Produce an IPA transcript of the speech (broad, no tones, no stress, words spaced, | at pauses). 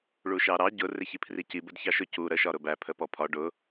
ɭuʃɑɾɑ ɟʊ rɪçipʰrici bədçɑʃʊ cu ɾə ʃɒɾʊbæ pʰəpɔpʰɒ ɖʊ